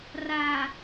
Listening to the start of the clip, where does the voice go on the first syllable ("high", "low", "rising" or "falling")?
low